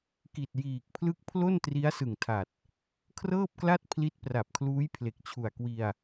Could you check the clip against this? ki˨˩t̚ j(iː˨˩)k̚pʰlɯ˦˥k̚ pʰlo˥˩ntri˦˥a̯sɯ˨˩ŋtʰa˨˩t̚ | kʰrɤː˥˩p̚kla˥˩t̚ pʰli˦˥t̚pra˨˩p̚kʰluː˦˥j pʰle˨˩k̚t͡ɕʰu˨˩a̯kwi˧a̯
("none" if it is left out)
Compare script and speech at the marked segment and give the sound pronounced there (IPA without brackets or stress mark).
iː˨˩